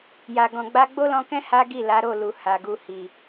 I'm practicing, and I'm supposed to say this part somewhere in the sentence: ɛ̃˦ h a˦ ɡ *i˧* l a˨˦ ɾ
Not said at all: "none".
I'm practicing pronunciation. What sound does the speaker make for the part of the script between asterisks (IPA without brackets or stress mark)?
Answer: i˦˨